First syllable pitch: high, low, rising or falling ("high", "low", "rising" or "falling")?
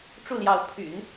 falling